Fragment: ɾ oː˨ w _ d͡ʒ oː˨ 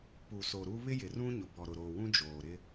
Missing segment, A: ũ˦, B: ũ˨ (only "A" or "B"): A